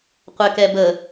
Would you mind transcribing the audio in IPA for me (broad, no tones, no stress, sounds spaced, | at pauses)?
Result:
qʷ ɛ k ɛ b ə